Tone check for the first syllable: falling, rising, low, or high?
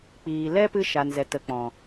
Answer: low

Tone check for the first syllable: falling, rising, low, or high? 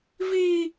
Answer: high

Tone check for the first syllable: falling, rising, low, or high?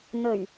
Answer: low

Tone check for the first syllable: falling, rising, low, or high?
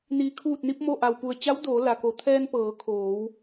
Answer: low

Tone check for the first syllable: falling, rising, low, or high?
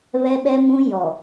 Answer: high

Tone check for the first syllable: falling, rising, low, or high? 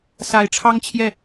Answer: rising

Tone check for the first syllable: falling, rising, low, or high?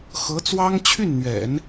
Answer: rising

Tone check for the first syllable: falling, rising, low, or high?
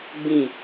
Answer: falling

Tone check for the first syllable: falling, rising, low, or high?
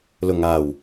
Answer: low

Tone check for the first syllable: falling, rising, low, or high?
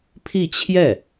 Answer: falling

